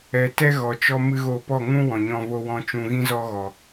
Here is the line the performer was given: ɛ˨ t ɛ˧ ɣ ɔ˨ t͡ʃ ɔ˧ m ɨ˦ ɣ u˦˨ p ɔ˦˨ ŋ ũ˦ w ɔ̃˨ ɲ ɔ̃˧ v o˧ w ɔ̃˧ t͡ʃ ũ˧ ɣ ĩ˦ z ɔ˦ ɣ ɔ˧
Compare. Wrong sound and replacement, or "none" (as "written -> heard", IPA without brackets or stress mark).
u˦˨ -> o˦˨